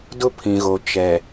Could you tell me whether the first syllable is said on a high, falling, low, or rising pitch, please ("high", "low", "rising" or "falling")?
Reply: high